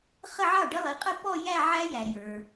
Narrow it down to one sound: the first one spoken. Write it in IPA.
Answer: χ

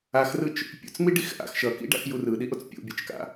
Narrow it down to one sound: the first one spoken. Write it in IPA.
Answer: a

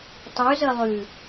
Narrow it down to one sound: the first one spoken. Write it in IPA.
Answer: tˤ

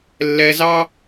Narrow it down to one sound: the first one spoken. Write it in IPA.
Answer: lː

